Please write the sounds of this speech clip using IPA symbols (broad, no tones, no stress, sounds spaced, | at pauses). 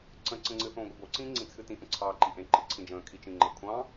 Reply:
ǀ ə̃ ǀ ə̃ ŋ͡ǀ ɨ θ õː ɡʷ ɨ b o ǀ ĩː ŋ͡ǀ ĩ t͡sʰ ɨ t ĩ ʔ ə̃ ǀʰ ɑː ǃ i ʔ ẽ ǃ ɨ ǀʰ ĩ d͡ʒ ə̃ː kʰ i t͡ʃ ĩ ŋ͡ǃ ə kʷʰ ɑ̃